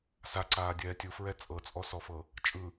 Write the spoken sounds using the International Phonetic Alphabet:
s a ǀ aː dʲ ɛː tʲ ɯ f ɹ ɛ t͡sʼ ɤ t͡sʼ ɔ s ɔ f ɤ | t͡ʃʼ ɯ

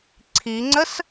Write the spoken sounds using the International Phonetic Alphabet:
ǀʰ i ŋ͡ǀ ə s

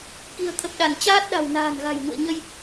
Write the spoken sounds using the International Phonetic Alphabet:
k i̤˨˩ ə̯ t̪ʰ ə˨˩ p̚ ɗ a˧˩ n t͡ɕ aː˦˥ t̚ ɗ a̤˨˩ w n a̤ː˨˩ n ɣ a̤˨˩ j ŋ ṵ˧˨ ə̯ ɲ ə˧ j

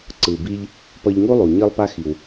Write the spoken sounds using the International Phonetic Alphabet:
ǀ ɯ˩ b i˧ ʎ | p ʌ˧ ʎ ŋ u˥ lˠ u˩ ɲ i˥ lˠ p a˥ x i˩ w

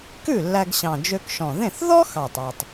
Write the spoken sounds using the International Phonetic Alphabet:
k ʉ˥˩ lː æ˧ ɡ ɕ ɑ̃˨˩ d͡ʒ ø˧ k ʃ ɔ̃˨˩ ð ẽ˥˩ θ ð ɔ˥ x ɑ˨˩ tˤ ɑ˨˩ tˤ

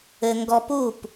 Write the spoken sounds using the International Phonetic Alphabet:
ɘ˧ ŋ ɡ ɔ˧ p u˥˩ p

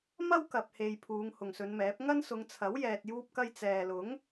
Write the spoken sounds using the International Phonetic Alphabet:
m ɐ˥ w k ɐ˨ p̚ h e˨ j pʰ uː˨˧ ŋ h ʊ˨ ŋ s ɵ˨˧ n m ɛː˨˥ p̚ ŋ ɐ˥ n s ʊ˨˧ ŋ t͡sʰ ɐ˨˥ w j ɛː˧ t̚ j uː˥ p̚ k ɐ˥ j t͡s ɛː˨ l ʊ˨˥ ŋ

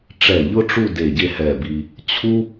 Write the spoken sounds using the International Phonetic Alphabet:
ʈ͡ʂ ɛ˧˩ ʎ ʊ˥ ʈ͡ʂ u˥˧ d e˧˩ ɟ e˥˧ h ɛ˧˩ b i˧ | t͡ɕʰ u˥

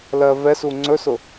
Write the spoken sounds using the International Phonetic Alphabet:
l ɜ v ɛ s u ŋ͡ǀ ɵ s ʊ

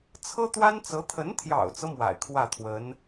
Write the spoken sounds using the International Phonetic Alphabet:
t͡sʰ ɤ˥ t̪ w a˥ n t͡s ɤ˧˥ t̪ʰ ə˧˥ n t̪ʰ j ɑ̰˨˩ ʊ̯ t͡s ɤ˦ m w a̰˨˩ ɪ̯ kʰ w ä˥˩ t̪ʰ w ə˧˥ n

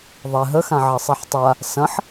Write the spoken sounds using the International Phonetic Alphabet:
ðˤ ɛ ɦ ə x ã ʕ ɐ sˤ ɛ ħ tˤ a | s ɐ̃ ħ

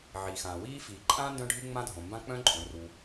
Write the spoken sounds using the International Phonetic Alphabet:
ʕ i˩ x ãː˩ w iː˥ f iː˩ ǃʼ ãː˥ n d œ̃˥ ɖʱ ɨ˥ ŋ͡m ã˥ dʱ õ˩ m b ã˥ k͡p œ̃˥ ǃʼ õ˩ r u˩

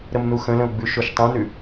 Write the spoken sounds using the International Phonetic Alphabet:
ɾ ə m n u x ə̃ l ə̃ o̯ ɡ͡b ʉ ʃ o ʃ tˤ ũ n ʉ

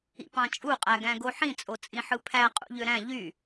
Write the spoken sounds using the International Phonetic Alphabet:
ḭ p ɑ̃ t͡ʃʼ u qʼ æ ɡ æ̃ ɡ o ħ ĩ t͡sʼ o t͡sʼ ĩ ħ ɯ pʰ æ qʼ ṵ ʎ ø ɾ æ̃ ʎ y

